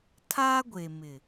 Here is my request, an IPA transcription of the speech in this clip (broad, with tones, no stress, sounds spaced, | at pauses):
tʰ a˦ ɡʷ e˨ m ɪ˨